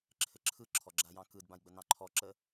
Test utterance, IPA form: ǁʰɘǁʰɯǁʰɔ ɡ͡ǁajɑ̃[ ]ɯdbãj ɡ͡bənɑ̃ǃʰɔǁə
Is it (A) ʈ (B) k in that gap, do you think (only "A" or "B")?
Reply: B